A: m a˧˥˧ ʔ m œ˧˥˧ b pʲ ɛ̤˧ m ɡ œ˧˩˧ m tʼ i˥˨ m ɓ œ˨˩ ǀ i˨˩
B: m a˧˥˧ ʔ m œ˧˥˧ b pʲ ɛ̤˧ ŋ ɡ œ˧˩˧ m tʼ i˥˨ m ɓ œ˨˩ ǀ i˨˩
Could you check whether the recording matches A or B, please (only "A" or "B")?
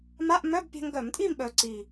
B